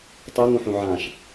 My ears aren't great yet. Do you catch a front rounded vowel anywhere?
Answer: yes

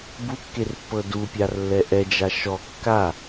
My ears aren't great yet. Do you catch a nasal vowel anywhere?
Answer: no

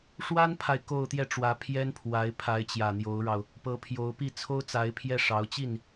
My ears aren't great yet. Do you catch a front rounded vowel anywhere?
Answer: no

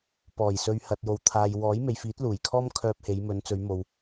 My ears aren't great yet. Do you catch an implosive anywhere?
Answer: no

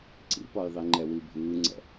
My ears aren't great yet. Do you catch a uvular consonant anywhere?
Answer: no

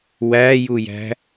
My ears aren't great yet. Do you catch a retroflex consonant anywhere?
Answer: no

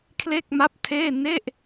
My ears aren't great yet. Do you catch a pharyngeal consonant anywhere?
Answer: no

